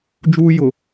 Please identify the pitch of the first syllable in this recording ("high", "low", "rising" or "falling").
high